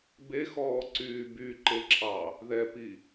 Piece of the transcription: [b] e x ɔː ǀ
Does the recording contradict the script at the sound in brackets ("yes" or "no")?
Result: no